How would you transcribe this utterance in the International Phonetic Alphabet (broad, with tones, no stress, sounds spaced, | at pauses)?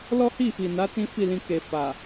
l ɔ˦ h i˦˨ f i˨ n a˨˦ t ĩ˦ f i˦˨ l ĩ˧ k e˨ f a˨